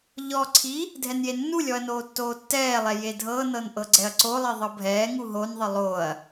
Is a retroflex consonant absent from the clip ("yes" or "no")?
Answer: yes